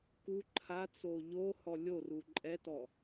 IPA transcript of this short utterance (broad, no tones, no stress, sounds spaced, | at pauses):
k u ǃʰ a t͡s o ʎ o h ɔ lʲ o r u ǃʼ ɛ t ɔ